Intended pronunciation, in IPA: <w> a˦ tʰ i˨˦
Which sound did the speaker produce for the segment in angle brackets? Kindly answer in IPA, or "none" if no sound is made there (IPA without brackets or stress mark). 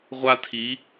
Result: ʁʷ